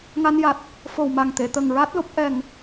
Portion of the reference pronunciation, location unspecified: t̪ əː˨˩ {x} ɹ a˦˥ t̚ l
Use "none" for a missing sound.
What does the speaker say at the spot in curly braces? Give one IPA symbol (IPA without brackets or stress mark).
ŋ